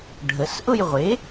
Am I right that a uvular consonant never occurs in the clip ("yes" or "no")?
no